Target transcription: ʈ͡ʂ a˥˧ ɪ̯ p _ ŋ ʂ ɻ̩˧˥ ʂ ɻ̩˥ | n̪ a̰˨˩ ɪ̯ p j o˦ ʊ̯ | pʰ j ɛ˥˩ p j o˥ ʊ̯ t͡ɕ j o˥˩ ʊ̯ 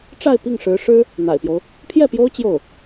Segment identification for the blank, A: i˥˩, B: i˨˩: A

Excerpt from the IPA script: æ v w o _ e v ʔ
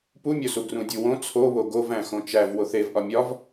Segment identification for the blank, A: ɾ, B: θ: B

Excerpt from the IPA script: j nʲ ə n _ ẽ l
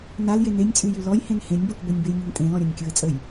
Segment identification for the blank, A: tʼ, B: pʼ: A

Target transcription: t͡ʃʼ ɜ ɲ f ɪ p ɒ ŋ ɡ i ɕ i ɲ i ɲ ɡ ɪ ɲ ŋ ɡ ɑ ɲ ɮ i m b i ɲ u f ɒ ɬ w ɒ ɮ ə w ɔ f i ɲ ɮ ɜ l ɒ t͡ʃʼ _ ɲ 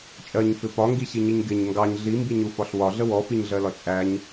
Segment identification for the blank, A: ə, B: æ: B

